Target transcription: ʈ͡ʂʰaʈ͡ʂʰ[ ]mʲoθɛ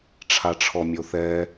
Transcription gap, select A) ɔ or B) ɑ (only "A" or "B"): A